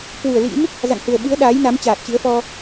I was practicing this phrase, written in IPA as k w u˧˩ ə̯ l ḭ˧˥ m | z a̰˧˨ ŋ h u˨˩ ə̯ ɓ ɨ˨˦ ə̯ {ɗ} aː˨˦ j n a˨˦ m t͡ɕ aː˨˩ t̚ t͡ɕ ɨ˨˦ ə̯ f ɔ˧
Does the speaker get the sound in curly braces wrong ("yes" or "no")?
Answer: no